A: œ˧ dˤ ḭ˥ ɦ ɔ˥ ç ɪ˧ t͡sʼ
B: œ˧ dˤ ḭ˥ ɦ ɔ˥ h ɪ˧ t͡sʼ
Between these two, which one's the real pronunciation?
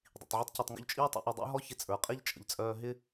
A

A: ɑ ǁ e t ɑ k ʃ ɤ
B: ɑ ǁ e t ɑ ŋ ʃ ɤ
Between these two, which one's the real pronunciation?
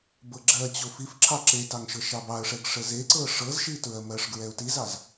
B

